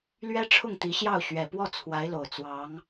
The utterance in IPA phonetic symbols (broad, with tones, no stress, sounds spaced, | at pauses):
l ɥ ɛ˥ ʈ͡ʂʰ ʊ˥˩ ŋ t̪ i˧˥ ɕ j ɑ˥˩ ʊ̯ ɕ ɥ ɛ˨˩ p w ɔ˥˩ t͡sʰ w a˧˥ ɪ̯ l o˨˩ ʊ̯ t͡s w ɑ˧˥ ŋ